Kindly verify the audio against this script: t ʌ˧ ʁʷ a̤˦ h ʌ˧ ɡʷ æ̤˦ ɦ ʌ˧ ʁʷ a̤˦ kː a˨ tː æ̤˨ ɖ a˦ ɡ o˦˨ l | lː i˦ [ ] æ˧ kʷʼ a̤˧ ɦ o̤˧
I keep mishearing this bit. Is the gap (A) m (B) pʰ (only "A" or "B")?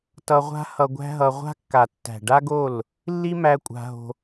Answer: A